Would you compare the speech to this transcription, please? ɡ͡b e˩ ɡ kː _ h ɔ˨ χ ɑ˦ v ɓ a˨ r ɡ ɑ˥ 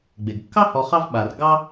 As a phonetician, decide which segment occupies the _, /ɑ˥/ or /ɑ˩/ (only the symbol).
ɑ˥